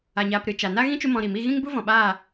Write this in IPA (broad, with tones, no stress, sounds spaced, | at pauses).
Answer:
a˨ ɲ aː˧ p ɾ ɨ˨ t͡ʃ a˨ n a˦ ɣ ĩ˦ t͡ʃ u˦ m ɔ̃˧ ɾ i˨ m i˧ ɣ ĩ˦ ŋ b u˦ v ɔ̃˨ ɓ aː˦˨